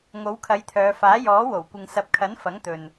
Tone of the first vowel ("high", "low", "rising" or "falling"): rising